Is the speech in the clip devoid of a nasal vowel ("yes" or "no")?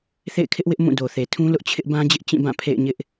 no